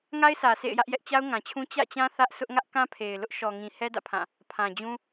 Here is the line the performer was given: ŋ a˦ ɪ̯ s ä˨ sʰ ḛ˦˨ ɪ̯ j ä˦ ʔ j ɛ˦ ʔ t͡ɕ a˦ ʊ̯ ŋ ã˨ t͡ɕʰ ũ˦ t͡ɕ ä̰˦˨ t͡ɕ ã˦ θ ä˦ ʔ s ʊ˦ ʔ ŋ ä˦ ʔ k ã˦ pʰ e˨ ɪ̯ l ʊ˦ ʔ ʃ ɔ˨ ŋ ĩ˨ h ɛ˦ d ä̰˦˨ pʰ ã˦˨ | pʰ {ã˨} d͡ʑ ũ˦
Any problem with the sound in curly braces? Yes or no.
no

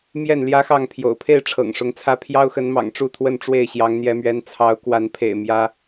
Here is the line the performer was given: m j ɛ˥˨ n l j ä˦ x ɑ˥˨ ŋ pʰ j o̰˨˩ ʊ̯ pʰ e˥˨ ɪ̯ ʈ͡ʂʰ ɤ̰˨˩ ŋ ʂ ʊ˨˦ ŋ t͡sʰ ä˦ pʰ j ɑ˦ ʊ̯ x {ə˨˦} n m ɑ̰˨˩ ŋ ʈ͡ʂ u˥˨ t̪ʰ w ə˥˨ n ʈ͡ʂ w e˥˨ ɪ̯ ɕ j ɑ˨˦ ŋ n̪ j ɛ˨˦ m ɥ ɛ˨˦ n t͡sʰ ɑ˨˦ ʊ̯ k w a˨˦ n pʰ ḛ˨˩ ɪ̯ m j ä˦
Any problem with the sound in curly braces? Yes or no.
no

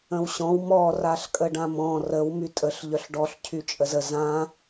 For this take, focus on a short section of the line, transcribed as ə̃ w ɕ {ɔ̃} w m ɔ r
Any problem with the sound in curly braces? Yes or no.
no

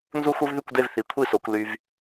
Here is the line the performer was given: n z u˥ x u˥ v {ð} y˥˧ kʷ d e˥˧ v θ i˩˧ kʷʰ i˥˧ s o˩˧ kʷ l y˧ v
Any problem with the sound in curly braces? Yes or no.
no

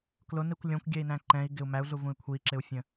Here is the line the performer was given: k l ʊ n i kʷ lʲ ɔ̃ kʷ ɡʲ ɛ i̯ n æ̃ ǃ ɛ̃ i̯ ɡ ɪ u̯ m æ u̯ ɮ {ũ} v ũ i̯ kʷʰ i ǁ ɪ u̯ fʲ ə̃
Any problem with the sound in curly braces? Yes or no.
yes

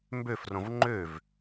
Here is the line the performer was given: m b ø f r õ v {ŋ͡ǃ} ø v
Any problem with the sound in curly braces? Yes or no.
no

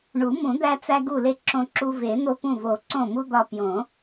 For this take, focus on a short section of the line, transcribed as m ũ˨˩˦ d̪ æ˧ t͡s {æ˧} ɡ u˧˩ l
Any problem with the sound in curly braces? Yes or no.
no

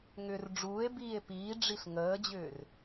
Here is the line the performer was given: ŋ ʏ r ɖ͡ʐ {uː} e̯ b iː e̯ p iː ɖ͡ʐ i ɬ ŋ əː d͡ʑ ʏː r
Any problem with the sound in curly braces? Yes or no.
no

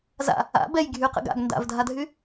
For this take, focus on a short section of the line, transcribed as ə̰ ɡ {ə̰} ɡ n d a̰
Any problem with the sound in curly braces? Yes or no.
yes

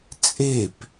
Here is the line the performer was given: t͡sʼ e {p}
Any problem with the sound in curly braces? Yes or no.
no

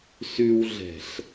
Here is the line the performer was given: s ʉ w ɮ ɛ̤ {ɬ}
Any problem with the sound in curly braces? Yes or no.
no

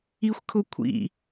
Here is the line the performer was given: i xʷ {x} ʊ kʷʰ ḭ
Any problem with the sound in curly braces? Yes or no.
yes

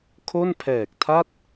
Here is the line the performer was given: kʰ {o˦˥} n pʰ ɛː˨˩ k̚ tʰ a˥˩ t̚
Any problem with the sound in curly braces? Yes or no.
yes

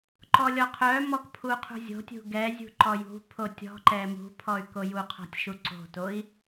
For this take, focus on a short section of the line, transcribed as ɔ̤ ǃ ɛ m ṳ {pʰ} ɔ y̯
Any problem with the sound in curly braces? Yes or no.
no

